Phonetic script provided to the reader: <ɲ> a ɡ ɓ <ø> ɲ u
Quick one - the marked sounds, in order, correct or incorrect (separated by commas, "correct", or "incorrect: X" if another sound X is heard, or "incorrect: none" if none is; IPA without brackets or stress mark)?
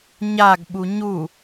correct, incorrect: u